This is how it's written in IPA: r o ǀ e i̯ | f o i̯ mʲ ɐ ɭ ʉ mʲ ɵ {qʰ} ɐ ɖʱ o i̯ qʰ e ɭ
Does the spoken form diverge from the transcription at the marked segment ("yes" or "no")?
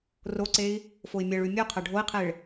no